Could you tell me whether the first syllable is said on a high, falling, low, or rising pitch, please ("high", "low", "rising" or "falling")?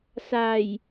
low